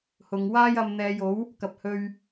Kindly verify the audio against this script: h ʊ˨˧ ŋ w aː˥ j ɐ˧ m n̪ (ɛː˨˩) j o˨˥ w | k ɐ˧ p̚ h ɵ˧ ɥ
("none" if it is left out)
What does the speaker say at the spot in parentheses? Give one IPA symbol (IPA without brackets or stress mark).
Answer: ɛː˨˧